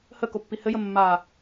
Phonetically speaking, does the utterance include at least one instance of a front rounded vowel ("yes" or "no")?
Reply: no